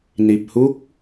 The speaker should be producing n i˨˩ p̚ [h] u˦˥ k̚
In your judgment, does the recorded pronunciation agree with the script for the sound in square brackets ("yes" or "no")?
yes